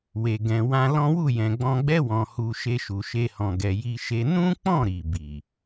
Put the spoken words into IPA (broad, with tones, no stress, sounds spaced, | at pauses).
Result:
w e˨ ɡ ɛ̃˨ w ã˧ l ɔ̃˦ w u˦˨ j ɛ̃˨ ɡ͡b ɔ̃˧ ɡ͡b ɛ˦ w ɔ̃˧ h u˧ ʃ e˧ ʃ u˨ ʃ e˧ h ɔ̃˨ ɡ ɛ˨ j i˧ ʃ e˧ n ũ˦ k͡p ɔ̃˦˨ ɾ i˨ b i˨